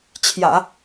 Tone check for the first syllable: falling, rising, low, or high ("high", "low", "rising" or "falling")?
low